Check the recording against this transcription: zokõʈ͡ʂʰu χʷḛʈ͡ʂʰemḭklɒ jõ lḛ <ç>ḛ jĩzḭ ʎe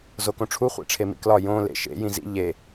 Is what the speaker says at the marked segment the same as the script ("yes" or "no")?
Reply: no